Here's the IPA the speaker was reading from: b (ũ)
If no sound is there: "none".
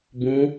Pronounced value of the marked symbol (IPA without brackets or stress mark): ũ